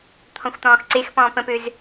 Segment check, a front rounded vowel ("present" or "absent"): present